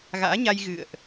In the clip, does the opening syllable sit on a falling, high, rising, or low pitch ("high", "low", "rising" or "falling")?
rising